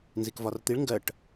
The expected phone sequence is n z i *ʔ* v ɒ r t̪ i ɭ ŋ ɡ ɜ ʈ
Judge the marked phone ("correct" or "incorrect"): incorrect